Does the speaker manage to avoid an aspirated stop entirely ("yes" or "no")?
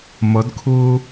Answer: no